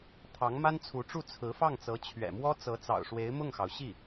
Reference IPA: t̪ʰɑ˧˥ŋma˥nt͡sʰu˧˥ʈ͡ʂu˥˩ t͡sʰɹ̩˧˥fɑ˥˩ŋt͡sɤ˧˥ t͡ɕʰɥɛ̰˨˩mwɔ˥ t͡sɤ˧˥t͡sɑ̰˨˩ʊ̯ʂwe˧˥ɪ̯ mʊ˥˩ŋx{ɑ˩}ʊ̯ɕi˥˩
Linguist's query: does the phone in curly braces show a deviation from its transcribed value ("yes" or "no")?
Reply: no